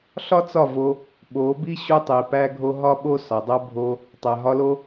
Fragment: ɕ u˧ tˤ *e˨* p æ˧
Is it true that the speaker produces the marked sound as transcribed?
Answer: no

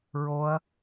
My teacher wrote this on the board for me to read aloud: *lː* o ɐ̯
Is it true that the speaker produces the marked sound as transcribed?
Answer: no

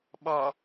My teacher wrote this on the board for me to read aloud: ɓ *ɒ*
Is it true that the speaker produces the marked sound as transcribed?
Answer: yes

